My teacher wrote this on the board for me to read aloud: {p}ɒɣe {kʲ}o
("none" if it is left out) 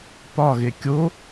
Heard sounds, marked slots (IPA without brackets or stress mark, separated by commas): p, kʲ